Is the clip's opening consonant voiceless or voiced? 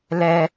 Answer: voiced